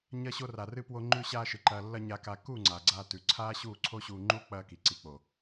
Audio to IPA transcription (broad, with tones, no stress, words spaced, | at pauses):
ɲɐ˧ɕo˧ ra˨rɨ˧pwo˧ ŋ͡ǃʉ˧ɕaː˧ʃɨ˨ ǃɐː˨lːɐ˧ ɲa˧ka˧ ku˦˨ ŋ͡ǀa˨ ɡ͡ǀaː˧ tʉ˨ǀʰaː˦ɕuː˦˨ ǀʰo˦ɕuː˧ ŋ͡ǃu˦ k͡pɐː˦ki˨ǀi˧ k͡po˨